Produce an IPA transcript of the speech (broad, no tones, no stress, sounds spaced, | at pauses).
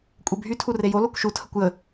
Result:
kʷʼ e bʱ y tʰ u r e j o l o kʷ ʃ u tʰ ə kʷ j ə